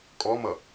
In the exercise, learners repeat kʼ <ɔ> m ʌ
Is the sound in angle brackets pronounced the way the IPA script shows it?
yes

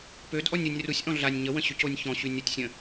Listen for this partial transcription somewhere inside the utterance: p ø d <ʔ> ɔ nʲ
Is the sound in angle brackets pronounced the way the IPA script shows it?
yes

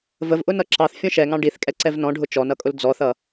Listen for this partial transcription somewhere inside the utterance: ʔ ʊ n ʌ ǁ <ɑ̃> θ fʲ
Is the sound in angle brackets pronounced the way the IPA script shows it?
no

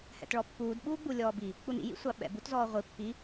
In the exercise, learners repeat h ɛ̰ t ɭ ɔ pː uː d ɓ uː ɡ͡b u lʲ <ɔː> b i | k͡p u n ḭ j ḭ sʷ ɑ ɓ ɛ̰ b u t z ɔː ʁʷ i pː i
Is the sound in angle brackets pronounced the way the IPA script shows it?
yes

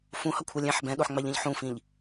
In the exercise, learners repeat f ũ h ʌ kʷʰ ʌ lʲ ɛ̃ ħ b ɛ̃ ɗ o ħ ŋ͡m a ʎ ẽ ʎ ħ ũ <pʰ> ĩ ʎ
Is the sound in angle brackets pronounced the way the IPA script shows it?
no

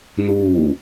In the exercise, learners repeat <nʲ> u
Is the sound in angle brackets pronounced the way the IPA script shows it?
no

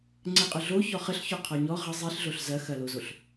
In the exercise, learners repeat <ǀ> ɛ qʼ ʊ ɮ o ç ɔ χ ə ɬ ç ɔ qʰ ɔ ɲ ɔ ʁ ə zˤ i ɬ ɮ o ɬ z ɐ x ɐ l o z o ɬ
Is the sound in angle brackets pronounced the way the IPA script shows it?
no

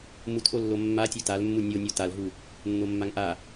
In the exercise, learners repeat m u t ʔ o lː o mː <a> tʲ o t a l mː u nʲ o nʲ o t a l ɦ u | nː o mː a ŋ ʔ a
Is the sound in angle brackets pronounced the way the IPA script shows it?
yes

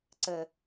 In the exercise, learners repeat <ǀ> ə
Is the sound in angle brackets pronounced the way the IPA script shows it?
yes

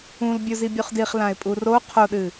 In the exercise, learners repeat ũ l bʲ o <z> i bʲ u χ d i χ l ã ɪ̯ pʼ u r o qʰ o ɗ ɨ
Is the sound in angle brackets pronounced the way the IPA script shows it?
yes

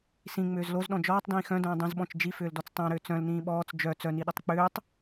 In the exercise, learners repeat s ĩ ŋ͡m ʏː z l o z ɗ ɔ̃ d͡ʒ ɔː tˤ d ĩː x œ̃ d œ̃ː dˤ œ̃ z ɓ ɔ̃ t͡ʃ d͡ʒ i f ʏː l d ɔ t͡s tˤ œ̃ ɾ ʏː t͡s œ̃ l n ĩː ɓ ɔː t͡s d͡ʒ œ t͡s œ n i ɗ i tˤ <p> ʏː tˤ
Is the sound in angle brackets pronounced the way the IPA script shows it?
no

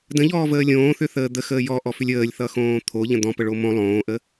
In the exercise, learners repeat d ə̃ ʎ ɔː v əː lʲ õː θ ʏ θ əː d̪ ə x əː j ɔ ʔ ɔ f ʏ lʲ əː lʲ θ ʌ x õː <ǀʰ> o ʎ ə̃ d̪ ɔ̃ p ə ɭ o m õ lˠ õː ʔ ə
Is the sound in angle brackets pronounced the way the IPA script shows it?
no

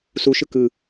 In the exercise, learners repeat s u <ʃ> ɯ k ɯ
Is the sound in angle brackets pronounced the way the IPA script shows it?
yes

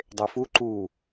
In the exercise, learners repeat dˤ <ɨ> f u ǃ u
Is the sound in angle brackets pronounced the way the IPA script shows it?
no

